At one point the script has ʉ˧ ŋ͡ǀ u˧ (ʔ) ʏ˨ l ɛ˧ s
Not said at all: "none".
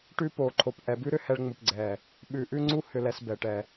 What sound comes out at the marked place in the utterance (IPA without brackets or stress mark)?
h